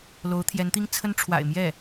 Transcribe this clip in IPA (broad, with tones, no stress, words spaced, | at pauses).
lo˧˥ʊ̯t̪ʰjɛ˧˥nt̪i˥ŋt͡sʰə˥n ʈ͡ʂʰwa̰˨˩ɪ̯mjɛ˥˩